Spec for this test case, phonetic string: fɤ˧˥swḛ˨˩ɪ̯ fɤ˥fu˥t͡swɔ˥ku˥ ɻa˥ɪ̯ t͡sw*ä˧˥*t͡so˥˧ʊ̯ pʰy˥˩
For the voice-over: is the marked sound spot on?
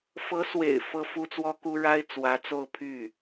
yes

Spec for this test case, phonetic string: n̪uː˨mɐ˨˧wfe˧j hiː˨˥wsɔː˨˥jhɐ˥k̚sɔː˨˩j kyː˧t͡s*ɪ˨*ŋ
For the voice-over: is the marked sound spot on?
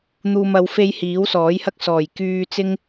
no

